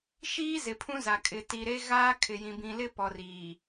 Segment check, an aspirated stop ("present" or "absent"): present